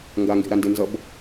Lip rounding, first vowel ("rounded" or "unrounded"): unrounded